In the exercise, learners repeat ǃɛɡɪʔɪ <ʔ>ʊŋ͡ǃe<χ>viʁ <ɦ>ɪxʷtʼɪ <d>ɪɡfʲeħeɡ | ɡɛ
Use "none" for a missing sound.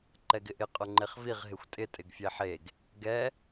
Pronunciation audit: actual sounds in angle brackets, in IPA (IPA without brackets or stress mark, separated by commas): qʼ, χ, ɦ, tʼ